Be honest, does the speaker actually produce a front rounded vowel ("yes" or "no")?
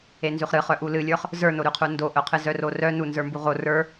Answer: yes